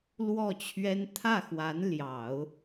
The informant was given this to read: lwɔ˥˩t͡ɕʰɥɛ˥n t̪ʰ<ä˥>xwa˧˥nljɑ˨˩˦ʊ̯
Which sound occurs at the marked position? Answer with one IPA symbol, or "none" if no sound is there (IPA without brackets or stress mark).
ä˥˩